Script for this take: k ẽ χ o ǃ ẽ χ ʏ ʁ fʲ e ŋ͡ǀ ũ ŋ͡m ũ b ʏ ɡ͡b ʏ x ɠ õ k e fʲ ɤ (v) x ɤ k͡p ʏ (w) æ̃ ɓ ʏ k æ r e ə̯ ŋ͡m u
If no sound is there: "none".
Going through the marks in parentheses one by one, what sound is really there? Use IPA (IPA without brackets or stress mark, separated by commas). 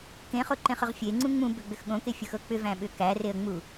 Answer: none, v